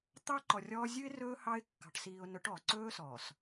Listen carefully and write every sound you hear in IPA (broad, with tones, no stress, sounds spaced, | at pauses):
t̪ ɑ˦ ǃ ɔ˨ rʲ ɔː˦ zʲ ʉ˦ ɪ̯ r ɵː˦ h ɑ˦ ɪ̯ kː ɑ̤˨ ʈ s iː˨ ʊ̯ n ɵ˨˦ ʈ ɔ˨ ǀ ɵː˦ s ɔː˨ s